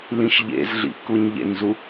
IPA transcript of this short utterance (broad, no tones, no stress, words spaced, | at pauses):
lĩʃʎḛzɮḭ kuɲʎḛnzu